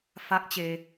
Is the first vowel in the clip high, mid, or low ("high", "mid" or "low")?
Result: low